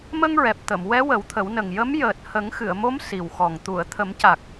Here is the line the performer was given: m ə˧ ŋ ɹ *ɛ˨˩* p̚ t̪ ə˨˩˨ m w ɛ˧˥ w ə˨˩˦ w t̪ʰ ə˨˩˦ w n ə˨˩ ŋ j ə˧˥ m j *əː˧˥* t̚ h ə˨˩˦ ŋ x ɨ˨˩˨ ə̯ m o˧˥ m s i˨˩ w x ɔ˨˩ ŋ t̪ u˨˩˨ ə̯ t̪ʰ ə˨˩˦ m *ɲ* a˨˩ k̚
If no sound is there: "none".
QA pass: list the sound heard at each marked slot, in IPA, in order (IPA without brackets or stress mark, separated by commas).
ɛ˨˩, əː˨˩, c